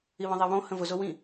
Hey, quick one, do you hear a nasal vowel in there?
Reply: yes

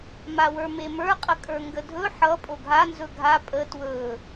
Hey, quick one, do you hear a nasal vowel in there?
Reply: no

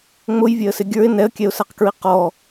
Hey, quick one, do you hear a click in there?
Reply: no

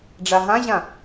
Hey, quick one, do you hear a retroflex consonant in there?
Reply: yes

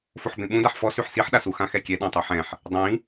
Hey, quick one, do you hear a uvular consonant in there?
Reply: no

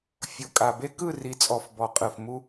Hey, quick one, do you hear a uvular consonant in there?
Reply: yes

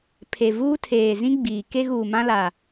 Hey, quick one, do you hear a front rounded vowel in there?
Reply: no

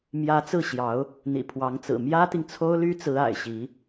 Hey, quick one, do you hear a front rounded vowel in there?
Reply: yes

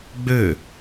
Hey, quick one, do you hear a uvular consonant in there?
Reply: no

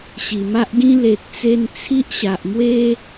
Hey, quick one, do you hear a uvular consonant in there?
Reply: no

